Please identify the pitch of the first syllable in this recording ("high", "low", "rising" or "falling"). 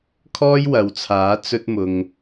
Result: high